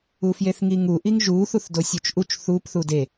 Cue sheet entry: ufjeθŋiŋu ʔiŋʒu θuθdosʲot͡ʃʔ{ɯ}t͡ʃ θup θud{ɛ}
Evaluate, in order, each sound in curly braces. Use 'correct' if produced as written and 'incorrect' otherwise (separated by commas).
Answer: incorrect, incorrect